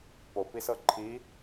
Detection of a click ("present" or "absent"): present